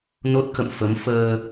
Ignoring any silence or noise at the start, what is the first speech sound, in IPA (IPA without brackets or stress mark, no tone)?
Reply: n